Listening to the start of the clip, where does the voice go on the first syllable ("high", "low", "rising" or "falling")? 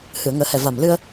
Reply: low